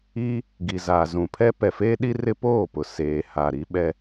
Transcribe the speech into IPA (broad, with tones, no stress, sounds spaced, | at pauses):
i˦ | ɡ i˨ z a˨ z ũ˨ pʰ ɛ˦ p ɛ˨ f eː˦ ɗ i˦ r ɪ˦ p oː˦˨ p ʊ˨ s eː˨ h a˨ ɾ i˦ ɓ ɛ˦